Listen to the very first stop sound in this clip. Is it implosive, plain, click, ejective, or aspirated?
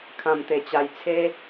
aspirated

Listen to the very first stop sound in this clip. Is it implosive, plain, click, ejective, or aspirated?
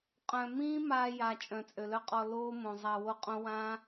ejective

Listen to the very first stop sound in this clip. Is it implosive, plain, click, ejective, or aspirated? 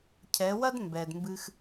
aspirated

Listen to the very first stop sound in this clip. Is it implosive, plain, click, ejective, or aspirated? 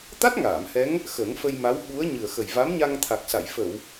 plain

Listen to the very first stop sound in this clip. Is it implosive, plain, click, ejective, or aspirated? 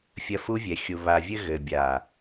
plain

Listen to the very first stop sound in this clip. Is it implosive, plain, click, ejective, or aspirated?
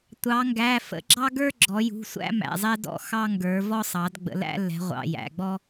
plain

